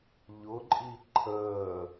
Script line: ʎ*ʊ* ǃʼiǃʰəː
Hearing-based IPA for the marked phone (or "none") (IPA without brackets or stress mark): ʊ